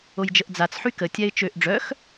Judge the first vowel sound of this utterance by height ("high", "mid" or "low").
mid